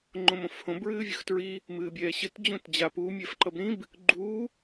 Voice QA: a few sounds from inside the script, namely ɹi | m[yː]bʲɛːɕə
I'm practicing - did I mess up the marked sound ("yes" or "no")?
yes